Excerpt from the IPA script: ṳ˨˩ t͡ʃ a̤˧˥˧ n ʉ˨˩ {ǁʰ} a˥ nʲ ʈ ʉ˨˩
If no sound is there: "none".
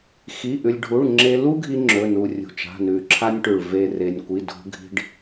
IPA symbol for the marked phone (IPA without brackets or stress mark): ǁʰ